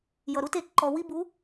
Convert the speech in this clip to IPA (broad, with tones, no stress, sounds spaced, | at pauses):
j ʌ˨ ɾ u˦ t e˨˦ ǃ ɔ˨ w i˦ b u˨˦